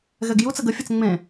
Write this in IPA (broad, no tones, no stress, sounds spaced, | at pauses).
ɣ ɛ ɡ j u t͡s ə ɡ ə fʲ ʌ t͡s ŋ͡m ẽ